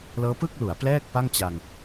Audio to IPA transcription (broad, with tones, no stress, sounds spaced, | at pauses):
l ɤː˦˥ p ɯ˥˩ k̚ l u˩˦ a̯ p l ɛː˥˩ k̚ p a˥˩ ŋ t͡ɕ a˧ ŋ